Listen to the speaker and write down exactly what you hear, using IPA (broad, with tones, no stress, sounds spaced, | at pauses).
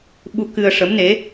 ɓ u˧ k ɨ˧ ə̯ ʂ ə˧˥ m n e˧˥